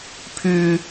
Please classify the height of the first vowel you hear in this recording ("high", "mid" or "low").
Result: high